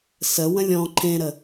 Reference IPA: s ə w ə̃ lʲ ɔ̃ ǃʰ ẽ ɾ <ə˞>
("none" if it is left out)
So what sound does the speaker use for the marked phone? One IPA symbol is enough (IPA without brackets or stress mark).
ə